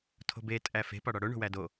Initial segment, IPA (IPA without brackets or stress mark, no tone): tʰ